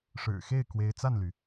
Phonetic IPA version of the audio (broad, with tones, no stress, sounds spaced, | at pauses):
ʂ ɻ̩˨˩ x e˥˩ ɪ̯ k w e˧˥ ɪ̯ t͡s a˥˩ n l y˩